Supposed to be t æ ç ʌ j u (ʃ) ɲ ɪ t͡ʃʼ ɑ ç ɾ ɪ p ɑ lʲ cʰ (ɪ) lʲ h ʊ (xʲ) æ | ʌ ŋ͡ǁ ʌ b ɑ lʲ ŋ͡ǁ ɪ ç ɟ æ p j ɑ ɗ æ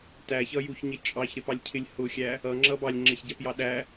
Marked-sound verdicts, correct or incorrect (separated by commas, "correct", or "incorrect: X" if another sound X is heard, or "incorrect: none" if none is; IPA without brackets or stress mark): incorrect: ç, correct, correct